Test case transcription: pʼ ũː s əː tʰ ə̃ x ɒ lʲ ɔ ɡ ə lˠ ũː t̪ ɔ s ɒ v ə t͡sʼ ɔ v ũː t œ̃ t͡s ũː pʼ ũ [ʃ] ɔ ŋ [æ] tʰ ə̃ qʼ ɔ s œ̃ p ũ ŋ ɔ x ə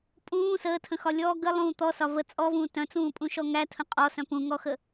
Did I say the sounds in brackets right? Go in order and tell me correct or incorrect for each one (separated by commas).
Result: correct, correct